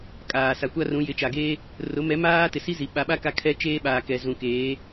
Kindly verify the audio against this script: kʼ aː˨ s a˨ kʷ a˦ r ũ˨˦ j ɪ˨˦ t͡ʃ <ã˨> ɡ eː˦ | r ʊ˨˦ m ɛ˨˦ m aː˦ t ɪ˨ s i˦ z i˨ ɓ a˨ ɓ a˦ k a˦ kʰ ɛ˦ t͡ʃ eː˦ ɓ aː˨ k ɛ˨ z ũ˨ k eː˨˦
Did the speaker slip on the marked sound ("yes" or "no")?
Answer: yes